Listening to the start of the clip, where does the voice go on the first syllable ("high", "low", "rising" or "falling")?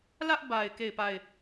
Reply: high